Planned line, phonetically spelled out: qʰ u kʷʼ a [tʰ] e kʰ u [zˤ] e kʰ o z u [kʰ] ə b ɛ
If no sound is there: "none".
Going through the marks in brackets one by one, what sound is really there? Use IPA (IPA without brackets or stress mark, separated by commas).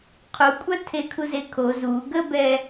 tʰ, z, ɡ